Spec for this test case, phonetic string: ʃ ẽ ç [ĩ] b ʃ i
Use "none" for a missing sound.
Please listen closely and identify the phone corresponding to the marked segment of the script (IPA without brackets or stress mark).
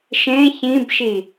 ĩ